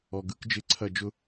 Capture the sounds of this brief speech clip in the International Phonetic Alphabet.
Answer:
ɔ˨ ɡ ɯ˦ k d͡ʒ ɪ˦˨ ǀʰ ɐ˦˨ d͡ʒ ʊ˦

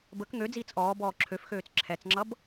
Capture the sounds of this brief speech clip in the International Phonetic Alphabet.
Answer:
b ə k ŋ ø d͡z iː t͡s ʔ ɔː b ɔː ǁʰ ø f x øː t͡s ǁʰ ɛ t͡s ŋ͡ǁ ʌ b

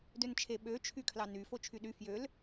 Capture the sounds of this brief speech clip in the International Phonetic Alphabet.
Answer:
d ø n t͡ʃʰ e ɓ ø t͡ʃʰ y kʰ l ɑ n y f o t͡ʃʰ y ɗ y f j ø l

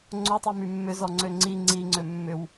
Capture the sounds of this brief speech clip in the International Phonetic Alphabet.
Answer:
ŋ͡ǀ o tˤ i m y mː ʏ z ɔ ŋ͡ǀ ø ŋ͡ǀ i ŋ͡ǀ i ŋ͡ǀ ø mː ʏ w

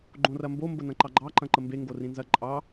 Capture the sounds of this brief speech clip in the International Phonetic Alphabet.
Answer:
ɡ͡ǃ õ r ɐ m b o m b ə n ɐ̃ ǃ ɑ ɡ͡ǃ ɑ ǃ ɐ̃ ǃ ə m b e ŋ ɡ o r ĩ n z ɐ ǃʼ ɑ

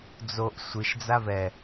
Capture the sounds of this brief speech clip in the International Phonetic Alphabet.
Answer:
d͡z o ʔ sʷ ɨ ʃ d͡z a v ɛ

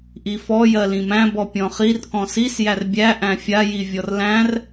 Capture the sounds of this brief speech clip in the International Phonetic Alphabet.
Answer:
ʔ i f ɔ j ɜ l ĩ m æ̃ b ɔ pʲ ɔ̃ χ i r k ɔ̃ s i s j æ r bʲ æ ʔ æ̃ fʲ a j i vʲ ɔ r l æ̃ r

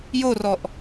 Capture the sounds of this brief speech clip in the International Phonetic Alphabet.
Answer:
j o r ɔ ʔ

